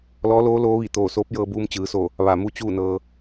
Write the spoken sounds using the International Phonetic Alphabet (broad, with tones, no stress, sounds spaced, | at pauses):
l ɔː˧˥ l oː˧˥ l oː˧˥ ʋ i˧˩ t̪ oː˧˩ s oː˧˥ p̚ j ɤː˧ b uː˧ m t͡ɕ ɯː˩˧ s o˧˩ | ʋ a˧˩ m u˥˨ t͡ɕ uː˥˨ n ɤː˧